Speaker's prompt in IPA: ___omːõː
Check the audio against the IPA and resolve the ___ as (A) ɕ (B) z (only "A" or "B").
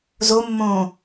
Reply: B